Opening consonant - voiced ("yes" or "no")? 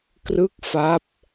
no